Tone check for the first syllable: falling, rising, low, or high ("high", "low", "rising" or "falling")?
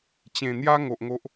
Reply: low